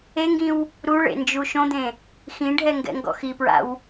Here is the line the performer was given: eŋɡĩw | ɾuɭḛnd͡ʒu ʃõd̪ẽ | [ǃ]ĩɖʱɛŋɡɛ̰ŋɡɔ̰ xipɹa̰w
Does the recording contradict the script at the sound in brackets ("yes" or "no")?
yes